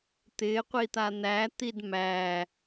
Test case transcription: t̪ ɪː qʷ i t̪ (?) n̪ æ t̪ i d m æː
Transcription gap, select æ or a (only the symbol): a